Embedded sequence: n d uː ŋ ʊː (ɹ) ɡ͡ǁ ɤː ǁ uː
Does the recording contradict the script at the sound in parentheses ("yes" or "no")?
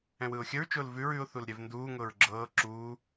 no